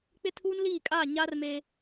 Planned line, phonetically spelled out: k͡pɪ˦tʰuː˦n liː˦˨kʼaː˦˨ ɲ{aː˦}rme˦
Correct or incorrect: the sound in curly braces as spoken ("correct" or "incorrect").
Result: incorrect